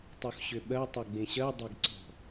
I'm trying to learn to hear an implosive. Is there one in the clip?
yes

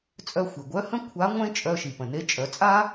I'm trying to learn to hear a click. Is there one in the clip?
no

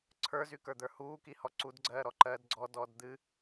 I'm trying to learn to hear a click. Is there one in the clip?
yes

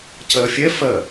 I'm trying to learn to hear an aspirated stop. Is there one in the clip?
yes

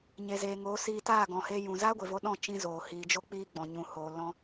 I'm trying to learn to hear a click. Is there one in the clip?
no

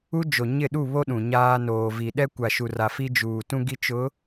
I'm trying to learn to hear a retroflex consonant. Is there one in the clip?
no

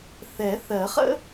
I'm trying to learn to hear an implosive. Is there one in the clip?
no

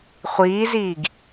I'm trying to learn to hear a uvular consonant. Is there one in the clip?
yes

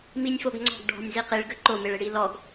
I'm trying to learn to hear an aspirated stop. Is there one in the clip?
no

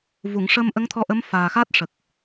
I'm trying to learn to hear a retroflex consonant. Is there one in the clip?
yes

